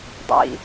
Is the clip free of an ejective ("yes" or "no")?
yes